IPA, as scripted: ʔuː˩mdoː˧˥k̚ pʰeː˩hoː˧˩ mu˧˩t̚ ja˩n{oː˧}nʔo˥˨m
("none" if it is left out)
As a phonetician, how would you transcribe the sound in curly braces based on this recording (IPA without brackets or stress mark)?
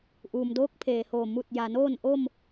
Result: oː˥˨